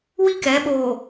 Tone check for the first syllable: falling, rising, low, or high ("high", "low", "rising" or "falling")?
high